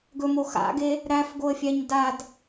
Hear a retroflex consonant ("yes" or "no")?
no